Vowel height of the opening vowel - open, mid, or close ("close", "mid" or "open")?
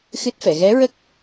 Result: close